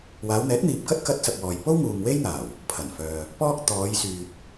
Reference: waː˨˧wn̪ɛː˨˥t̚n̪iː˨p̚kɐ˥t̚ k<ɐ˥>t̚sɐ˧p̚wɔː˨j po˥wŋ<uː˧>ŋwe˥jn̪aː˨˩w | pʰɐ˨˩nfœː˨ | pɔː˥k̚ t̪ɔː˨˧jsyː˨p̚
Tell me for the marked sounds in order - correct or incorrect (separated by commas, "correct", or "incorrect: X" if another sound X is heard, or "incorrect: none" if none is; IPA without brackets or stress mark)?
correct, incorrect: uː˨